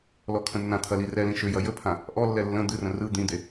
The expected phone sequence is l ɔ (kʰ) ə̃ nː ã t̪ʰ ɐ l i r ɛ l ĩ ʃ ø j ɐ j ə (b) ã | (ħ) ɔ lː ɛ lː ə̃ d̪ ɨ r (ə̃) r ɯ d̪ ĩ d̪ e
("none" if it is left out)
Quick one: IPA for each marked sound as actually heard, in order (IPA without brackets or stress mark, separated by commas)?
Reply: kʰ, pʰ, ʔ, ə̃